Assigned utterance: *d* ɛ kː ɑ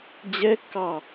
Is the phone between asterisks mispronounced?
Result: yes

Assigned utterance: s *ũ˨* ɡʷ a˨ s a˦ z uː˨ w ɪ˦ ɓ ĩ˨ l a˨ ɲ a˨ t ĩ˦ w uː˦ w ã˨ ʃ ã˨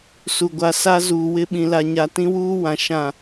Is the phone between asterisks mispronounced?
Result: yes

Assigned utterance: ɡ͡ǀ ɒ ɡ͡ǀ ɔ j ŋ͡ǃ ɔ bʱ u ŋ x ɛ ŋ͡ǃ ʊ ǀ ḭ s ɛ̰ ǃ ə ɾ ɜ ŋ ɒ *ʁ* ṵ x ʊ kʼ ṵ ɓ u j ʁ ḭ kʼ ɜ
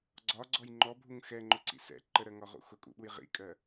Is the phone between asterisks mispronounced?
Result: no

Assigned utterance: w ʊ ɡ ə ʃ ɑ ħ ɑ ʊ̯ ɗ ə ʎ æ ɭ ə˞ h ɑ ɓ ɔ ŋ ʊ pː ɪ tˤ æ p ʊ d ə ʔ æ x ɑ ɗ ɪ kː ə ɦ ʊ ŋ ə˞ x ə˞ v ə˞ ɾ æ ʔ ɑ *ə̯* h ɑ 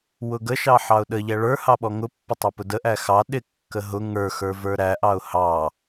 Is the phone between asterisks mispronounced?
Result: yes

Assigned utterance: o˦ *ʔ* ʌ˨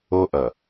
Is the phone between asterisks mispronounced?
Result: no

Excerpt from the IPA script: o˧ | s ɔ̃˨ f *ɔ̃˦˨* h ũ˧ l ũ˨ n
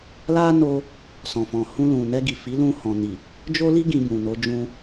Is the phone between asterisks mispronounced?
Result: yes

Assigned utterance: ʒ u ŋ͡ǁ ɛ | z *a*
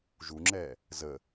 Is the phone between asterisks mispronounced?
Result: yes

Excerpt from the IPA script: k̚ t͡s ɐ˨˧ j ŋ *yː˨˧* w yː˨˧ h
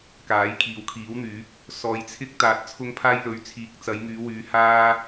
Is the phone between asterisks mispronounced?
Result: no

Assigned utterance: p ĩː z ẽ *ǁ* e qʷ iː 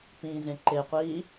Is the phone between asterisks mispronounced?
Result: yes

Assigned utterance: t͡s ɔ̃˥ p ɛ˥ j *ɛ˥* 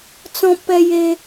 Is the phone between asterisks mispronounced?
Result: yes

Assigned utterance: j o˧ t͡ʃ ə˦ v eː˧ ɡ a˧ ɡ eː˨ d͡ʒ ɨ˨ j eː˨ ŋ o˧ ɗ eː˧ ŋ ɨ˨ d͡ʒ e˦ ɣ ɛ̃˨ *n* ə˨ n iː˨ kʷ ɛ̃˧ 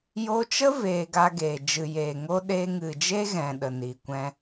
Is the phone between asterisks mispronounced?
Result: yes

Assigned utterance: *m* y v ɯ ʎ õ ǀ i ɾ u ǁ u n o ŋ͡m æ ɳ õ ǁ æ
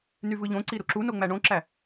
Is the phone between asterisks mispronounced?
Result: yes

